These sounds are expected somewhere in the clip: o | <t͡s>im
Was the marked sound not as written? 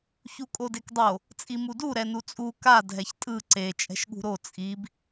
yes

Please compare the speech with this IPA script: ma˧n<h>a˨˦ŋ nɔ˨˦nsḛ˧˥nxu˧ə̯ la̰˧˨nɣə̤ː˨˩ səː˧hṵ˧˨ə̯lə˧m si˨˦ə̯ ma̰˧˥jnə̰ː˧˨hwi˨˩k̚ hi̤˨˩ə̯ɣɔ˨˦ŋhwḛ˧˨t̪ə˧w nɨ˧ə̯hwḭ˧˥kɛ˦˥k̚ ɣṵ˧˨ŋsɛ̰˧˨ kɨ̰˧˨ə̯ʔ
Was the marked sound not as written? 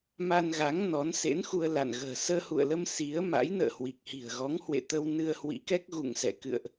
yes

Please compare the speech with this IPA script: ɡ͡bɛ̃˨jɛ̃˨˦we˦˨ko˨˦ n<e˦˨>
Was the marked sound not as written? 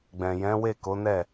yes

